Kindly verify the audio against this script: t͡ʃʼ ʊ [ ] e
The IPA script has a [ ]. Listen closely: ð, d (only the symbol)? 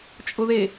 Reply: ð